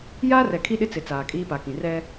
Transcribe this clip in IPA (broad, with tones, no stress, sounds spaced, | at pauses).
j aː˦ r ɛ˨ kʰ i˦ ɗ ɪ˦ t͡s ɪ˨ t͡s aː˨ kʼ iː˦ p a˨ k ĩ˨ r ɛ˦